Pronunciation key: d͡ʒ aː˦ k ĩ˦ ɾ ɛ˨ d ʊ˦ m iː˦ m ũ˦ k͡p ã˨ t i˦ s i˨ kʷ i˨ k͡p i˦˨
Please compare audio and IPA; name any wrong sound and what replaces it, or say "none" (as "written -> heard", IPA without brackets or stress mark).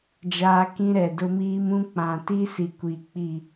none